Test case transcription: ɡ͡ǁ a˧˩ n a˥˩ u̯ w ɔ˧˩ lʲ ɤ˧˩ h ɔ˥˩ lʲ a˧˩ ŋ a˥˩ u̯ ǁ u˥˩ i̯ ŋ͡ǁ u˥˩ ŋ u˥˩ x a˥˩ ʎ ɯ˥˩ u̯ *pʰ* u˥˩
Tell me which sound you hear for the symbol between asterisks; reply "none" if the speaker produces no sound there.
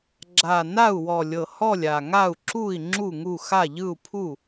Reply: pʰ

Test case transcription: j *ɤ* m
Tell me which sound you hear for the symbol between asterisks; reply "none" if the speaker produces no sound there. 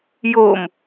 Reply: o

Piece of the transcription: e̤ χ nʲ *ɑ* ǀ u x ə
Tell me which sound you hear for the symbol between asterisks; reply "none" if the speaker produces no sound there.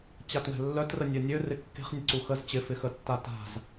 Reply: ə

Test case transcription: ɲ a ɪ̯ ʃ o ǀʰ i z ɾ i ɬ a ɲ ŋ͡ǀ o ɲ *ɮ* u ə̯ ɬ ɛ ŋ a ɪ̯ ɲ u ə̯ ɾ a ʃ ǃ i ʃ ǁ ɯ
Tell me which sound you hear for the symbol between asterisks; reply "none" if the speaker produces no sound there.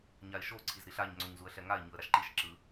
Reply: z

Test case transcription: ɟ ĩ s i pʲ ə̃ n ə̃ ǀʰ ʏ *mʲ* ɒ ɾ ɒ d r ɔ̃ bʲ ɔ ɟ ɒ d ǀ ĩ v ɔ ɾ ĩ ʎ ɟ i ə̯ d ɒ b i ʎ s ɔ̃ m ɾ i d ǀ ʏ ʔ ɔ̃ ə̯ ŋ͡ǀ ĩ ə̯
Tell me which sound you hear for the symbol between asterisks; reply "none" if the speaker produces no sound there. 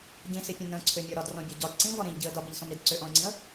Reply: mʲ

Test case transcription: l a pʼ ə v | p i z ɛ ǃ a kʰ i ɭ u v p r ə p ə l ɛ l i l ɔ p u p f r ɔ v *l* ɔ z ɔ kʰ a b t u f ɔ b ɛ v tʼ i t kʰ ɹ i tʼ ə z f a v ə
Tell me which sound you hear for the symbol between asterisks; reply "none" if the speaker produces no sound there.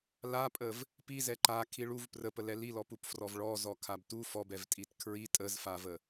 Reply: ɭ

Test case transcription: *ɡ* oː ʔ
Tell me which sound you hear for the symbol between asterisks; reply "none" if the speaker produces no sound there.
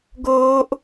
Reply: ɡ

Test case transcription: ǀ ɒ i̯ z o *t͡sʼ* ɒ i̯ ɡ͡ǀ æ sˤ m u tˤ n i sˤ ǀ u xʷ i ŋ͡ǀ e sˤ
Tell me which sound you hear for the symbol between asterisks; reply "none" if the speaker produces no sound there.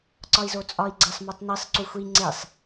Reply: t͡sʼ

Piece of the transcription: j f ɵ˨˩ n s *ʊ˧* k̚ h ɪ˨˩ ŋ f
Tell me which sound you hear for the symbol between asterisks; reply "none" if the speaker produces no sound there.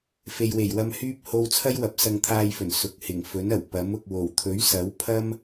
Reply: ʊ˨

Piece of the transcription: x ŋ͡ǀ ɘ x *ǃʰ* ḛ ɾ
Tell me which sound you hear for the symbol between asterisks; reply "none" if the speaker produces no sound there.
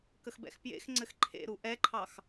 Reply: ǃʰ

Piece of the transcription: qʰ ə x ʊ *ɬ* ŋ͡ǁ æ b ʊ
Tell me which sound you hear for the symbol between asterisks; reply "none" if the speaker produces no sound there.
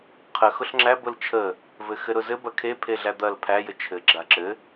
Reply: ɬ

